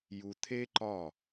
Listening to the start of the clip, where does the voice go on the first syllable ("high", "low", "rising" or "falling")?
low